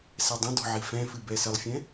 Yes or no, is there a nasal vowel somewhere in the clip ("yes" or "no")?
yes